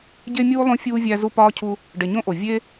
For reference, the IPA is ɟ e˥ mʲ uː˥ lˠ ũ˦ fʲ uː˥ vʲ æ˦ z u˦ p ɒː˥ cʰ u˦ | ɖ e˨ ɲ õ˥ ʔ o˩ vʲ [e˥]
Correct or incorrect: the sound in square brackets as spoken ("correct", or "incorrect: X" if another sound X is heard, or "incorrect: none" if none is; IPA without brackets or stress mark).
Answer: correct